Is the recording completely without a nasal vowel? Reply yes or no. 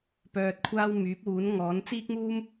yes